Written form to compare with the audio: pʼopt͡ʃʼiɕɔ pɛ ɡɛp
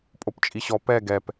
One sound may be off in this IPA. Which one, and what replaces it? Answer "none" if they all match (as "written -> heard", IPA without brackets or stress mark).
none